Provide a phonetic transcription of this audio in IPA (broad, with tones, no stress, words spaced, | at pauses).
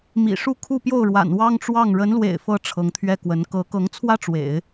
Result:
mḭ˨˩ ʂu˥kʰu˥˧pjo˥˩ʊ̯ɻwa̰˨˩n wɑ˥ŋʈ͡ʂwɑ˥˩ŋ ɻə˧˥nlwḛ˨˩ɪ̯fɤ˧˥ ʈ͡ʂʰɤ˧˥ŋt̪ʰɥɛ˥˩kwə˧˥n kɤ˧˥ kɤ˧˥ŋt͡sʰwä˥ ʈ͡ʂwḛ˨˩˦ɪ̯